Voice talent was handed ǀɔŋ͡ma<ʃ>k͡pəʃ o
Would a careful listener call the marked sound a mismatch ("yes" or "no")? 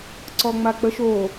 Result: yes